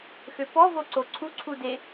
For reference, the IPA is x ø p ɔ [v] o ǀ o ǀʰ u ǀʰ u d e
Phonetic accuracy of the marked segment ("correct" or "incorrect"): correct